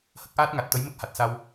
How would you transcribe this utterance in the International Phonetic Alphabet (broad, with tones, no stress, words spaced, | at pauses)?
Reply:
hə˦˥k̚ʔaː˦˥t̚ŋa˨˩t̚t̪ə˧˥j mə˦˥k̚ha˨˩t̚sa˧w